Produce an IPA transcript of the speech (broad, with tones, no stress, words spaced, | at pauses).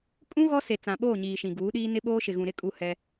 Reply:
kʼũ˦ ɣɔ˦se˨ t͡sã˨ɓoː˦˨ɲiː˨ ʃĩ˨ɡuː˨˦ɗiː˦ nɪ˦ɓoː˦ ʃɪ˨ɣũ˨ɾɪ˦ kʼu˦˨hɛ˦